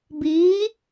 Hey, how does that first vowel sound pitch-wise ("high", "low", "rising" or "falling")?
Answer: rising